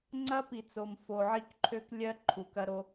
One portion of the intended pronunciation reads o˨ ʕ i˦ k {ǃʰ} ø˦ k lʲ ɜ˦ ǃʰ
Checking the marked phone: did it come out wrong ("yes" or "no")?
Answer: no